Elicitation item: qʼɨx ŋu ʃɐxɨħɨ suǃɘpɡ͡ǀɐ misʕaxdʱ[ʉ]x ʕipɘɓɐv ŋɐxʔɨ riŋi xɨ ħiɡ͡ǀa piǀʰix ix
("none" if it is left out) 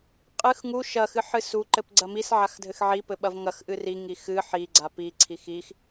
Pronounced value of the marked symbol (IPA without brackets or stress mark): ɘ